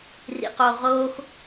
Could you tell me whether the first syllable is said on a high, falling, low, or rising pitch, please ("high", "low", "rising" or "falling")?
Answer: low